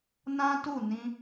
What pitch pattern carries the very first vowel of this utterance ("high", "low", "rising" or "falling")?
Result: high